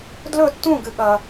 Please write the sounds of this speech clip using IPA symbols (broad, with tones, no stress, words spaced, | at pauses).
dlɵ˥˨tːũ˥˨ɡɨ˨ ɠɐ˨